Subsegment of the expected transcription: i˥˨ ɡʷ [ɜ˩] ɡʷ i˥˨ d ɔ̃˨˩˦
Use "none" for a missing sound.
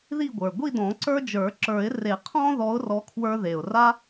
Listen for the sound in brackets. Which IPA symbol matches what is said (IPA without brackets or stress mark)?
ə˞˩